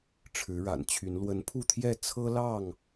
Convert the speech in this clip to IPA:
ʈ͡ʂʰ ɻ̩˨˦ ɻ a̰˨˩ n t͡ɕʰ y˨˦ n l w ə˨˦ n pʰ u˥˨ t̪ʰ j ɛ˥˨ t͡sʰ ɤ˦ l ɑ˥˨ ŋ

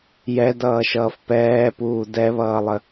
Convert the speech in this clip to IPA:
j ɛ d ʌː ʃ ʌː f p ɛː p uː d ɛ β ʌː lˠ ə

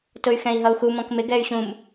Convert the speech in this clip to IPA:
t ʊ y̯ x ɛ̃ i̯ ɦ ʌ u̯ x u m ɔ̃ k m ɪ ɡ ɛ y̯ ɕ ũ m

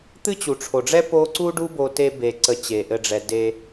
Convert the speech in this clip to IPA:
t̪ ɨ˦ t͡ɕ u˨ ʈ͡ʂʰ o˨ ɖ͡ʐ ɛ˦ p o˦ ǀ u˦ ɖ u˦ b o˧ t e˧ b e˨ ǀ ə˧ t͡ɕ e˨ ʔ ɘ˧ ɖ͡ʐ ɛ˨ d e˧

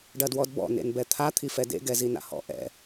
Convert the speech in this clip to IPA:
ɖ ɐ d w ɔ d b ɔ̰ n ḛ n b ɛ t̪ʰ a t̪ʰ i f ɛ d ḛ ɡ ɛ z i n a̰ h ɔ̰ ʔ ɛ̰

